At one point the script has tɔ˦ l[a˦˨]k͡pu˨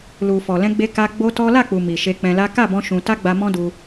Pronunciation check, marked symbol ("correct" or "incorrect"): correct